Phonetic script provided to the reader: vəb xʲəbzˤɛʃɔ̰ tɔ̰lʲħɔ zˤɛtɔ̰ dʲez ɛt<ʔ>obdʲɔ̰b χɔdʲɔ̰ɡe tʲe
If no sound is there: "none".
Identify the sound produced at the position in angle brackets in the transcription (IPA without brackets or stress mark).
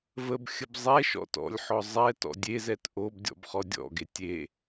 ʔ